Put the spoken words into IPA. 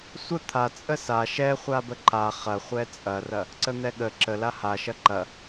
sʷ ə t̪ʰ a t͡sʼ ə s a ʃ ɛ χʷ a b ə ǃ a χ ɐ χʷ ɛ t͡sʼ ɐ r ɐ | ǀ ə n̪ ɛ ɠ ə ǁ ə l a h a ʃ ɐ ǃ ɐ

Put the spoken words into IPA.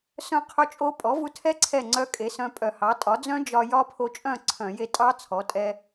s œ̃˥˨ qʰ ɵ˦˥ t͡ʃʼ o˦˥ pʼ ɔ˩˥ v u˧ tʰ ɛ˦˥ ǀʰ ɛ˥˨ ŋ͡ǀ œ˦˥ kʼ e˩˥ s œ̃˧ pʼ œ˧˩˧ h ɑ˩˥ tʼ ɒ˩˥ d͡z œ̃˦˥ d͡ʒ ɒ˧ j ɒ˦˥ pʰ o˧ t͡ʃʼ œ̃˥˨ ǀʰ œ̃˧˩˧ j e˧ tʼ ɑ˦˥ t͡sʰ ɔ˩˥ tʼ ɛ˧

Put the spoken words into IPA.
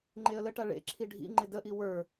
ŋ͡ǃ e ə̯ l ə ʈ a ɭ ḛ ǁʰ i ɖʱ ḭ ŋ͡ǃ ɪ d ə ʔ i w ə˞

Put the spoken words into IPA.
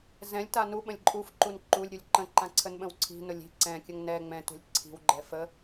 z ɛ̃ lʲ t a n u ɓ ə̃ lʲ ǃʼ u f ǃ u n ǃ u lʲ ɾʲ u lʲ ǃ ə̃ ǃ ã ǀʰ ə n ɓ ə̃ w ǀʰ i̤ n ʊ lʲ i̤ ǀ ɛ̃ kʲ ə ŋ n ɛ ŋ͡m ɛ̃ t ṳ lʲ ǀʰ i̤ w ɡ͡ǃ ɛ f ə

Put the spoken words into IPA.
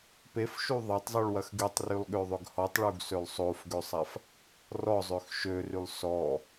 p e f ʃ u ðˤ ɐ tˤ zˤ y ɭ w ɐ x ɡ y tˤ r y lˠ ɠ ø ðˤ ʏ ɡ h ɔ tˤ ɭ u ɡ s ø lˠ sˤ o f ɡ ø sˤ a f | r ɔ zˤ ø x ʃ ø r y lˠ s ɔ

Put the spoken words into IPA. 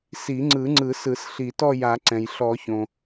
s i˨˩˦ ŋ͡ǀ ɯ˨˩˦ ŋ͡ǀ ɯ˨˩˦ s ɯ˨˩˦ s ɬ i˨˩˦ t ɔ˥˧ j a˨˩˦ ǀ ɛ̃˩ j ɬ ɔ˨˩˦ ç õ˩

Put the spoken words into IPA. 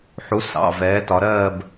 ħ u˩˥ s ɑ̰˩˧˩ v ɛː˩˥ t ɒ˩˧ ɾ ɜː˥˨ b

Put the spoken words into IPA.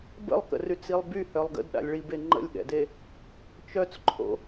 b ə̰ lˠ k ə̰ r y t͡s i lˠ b y h œ lˠ ɡ ə̰ d ɗ a̰ lʲ ɭ i b e ŋ͡ǃ ə̰ lʲ ɠ ɛ̰ d e | t͡ʃ œ t͡s ǃʰ o̰

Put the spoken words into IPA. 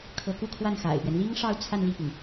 kʰ ɤ˧˥ k u˥˧ kʰ w a˥˩ n x a̰˨˩ ɪ̯ p ɥ ɛ˦ n l i˥ ŋ ʂ ɑ˥˧ ʊ̯ t͡sʰ a˥˧ n l i˥˩ p i˩ ŋ

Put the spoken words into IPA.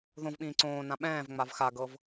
ð õ v ɓ ĩː ǀ õː n ã ɓ ɛ̃ː v ŋ͡m a v x a ɡ ɤ v

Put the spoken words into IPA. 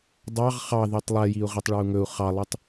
dˤ ɑ ʁ χ ɑ ð i tˤ lˠ ɛ j i u̯ ʁ i tˤ ɭ ɑ u̯ ŋ ɵ u̯ χ ɑ lˠ i tˤ

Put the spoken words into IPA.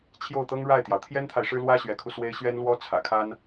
t͡ɕʰ j o˥˩ ʊ̯ t̪ ɤ˥ ŋ ɻ a˥˩ ɪ̯ t̪ j ɑ˩ ʊ̯ t̪ʰ j ɛ˥ n t̪ʰ a˨ ɪ̯ ʂ ɻ̩˥ l w ä˥ ɕ ɥ ɛ˧˥ kʰ u˧ s w e˥ ɪ̯ ɕ ɥ ɛ˥ n l w ɔ˥ t͡sʰ ä̰˨˩ kʰ a˥ n

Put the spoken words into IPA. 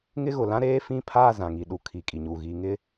ŋ ɪ˦ ɣ ʊ˨ l ã˦ ɾ eː˦ f ĩ˦˨ pʰ aː˦˨ z ã˨ ŋ i˨ ɗ u˨ kʰ i˨ kʼ i˨ ɲ u˨ ɣ i˨ ŋ ɪ˦

